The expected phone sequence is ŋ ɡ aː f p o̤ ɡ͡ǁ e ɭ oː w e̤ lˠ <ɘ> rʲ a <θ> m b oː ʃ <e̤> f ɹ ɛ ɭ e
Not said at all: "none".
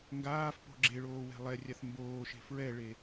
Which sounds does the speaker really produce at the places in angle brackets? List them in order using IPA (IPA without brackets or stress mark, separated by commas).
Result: ɛ, θ, e̤